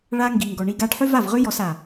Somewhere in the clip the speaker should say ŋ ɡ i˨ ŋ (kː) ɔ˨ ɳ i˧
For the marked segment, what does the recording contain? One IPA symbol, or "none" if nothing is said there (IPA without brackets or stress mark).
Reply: ɡ